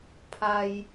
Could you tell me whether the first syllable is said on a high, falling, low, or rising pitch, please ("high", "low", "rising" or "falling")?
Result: low